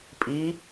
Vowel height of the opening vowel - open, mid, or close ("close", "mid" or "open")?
close